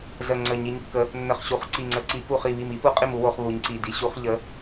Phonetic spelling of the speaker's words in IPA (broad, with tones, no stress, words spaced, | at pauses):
zə˧˩ŋ͡ǀə˧˩ ɲi˨˦ɲ kːə˨˦ | nːə˧˩χɕu˧˩χ ǀi˧˩ŋ͡ǀə˧˩ǀi˨˦ pu˧˩χ i˧˩βi˧˩m i˨˦pu˨˦qʼi˧˩m u˨˦wo˨˦χβu˨˦ɲ ǀi˧˩ di˨˦ɕu˨˦χ ʎə˨˦